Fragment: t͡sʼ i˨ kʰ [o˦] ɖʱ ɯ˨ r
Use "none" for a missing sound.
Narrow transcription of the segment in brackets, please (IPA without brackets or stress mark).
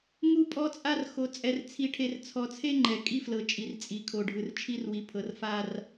o˨